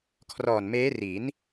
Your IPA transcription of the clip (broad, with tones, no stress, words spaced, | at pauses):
kʰrɔː˨˩nmeː˦˥ri˩˦n